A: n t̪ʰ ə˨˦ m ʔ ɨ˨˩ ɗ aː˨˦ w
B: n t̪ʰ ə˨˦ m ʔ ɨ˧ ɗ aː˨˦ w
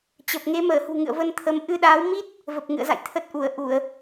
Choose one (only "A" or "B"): B